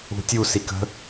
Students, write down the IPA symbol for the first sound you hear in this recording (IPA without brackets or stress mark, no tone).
ṳ